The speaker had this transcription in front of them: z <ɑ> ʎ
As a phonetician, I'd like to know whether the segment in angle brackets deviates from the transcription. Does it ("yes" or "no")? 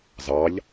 no